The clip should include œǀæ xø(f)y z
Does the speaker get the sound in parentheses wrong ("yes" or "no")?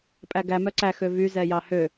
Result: yes